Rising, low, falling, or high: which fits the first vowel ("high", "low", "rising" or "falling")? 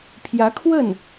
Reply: rising